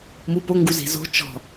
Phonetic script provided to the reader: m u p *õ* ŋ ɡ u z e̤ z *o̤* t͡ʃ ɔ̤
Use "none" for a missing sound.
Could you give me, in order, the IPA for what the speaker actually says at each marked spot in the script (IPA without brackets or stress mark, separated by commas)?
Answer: o, o̤